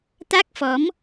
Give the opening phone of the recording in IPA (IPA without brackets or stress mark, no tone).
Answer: t̪